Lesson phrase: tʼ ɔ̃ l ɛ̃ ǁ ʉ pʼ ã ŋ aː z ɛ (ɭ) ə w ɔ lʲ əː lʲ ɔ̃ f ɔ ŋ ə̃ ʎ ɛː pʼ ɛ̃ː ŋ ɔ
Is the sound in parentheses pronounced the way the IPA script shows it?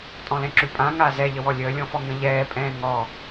no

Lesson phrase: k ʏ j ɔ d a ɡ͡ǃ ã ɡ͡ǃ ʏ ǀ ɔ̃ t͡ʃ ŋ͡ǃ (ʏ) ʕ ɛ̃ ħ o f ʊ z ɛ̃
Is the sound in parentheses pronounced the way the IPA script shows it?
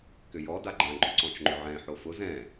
yes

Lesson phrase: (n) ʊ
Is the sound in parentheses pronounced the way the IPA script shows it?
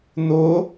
yes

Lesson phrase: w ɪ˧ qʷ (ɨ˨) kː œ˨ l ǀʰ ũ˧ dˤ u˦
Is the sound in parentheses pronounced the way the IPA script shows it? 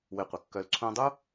no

